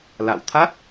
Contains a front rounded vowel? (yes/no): no